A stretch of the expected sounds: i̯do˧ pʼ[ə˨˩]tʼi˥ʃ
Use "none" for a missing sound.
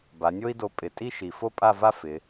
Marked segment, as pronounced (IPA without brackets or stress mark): ɪ˨˩